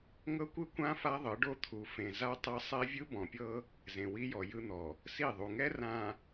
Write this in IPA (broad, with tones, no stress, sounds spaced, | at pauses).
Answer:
ŋ ɤ˦ kʷ ɯ˦ kʷ ã˦ f a˦ ðˤ ɯ˨˦ ɖ o˦ t̪ʰ u˨ f ẽ˨ z a˦ tˤ ɛ˦ sˤ e˦ vʲ ɯ˦ b ɔ̃˨ pʲ ɤ˦ | z ẽ˨ w i˦ j ɔ˨ j ɯ˦ n̪ ɔ˨ | s i˦˨ ðˤ u˨ ŋ ɛ˦ r ã˨